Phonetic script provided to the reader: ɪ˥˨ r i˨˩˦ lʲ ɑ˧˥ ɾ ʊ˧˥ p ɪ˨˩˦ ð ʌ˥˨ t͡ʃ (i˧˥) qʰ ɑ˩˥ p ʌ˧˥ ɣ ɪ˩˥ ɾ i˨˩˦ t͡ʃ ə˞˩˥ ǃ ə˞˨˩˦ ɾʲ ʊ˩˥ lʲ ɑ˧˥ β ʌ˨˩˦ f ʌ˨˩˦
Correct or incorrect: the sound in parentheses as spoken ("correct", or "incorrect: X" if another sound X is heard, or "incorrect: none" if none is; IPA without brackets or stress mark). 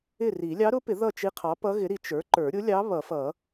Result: correct